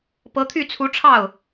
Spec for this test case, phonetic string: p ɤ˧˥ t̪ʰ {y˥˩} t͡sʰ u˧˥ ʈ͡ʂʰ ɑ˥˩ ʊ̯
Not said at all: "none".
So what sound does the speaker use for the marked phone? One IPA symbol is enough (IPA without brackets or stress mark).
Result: y˥˩